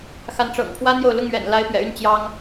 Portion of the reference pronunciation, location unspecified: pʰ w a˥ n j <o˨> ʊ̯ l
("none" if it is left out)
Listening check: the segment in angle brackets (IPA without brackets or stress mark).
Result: o˨